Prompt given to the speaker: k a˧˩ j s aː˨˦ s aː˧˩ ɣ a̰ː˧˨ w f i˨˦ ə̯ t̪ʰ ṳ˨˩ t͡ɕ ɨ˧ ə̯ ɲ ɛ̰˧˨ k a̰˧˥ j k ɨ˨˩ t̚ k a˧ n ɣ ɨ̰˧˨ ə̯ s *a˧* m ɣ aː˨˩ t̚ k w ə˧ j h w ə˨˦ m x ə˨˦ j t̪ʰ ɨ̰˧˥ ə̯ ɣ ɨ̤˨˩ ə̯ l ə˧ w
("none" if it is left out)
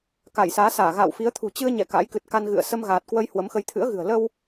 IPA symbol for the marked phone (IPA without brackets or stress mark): ə˧